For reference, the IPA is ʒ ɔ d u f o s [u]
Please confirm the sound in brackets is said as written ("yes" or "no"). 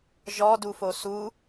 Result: yes